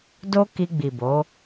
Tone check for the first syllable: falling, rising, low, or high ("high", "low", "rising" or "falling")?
high